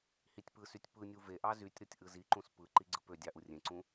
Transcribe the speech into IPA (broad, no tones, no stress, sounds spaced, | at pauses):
h i tʲ p ɯ s y tʲ p ɯ nʲ u v e ʔ ɑ z y tʲ ɾ o tʲ ʔ ɯ z i ǃ ũ s p ɯ ǃ i ɡ͡ǀ ɯ p ø dʲ ɑ ʔ u rʲ ẽ ǀ ũ